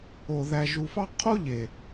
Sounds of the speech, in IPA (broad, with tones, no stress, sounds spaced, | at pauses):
o˨ ð æ˨ ʒ u˨ f ɑ˦ qʰ o˦ ʎ e˨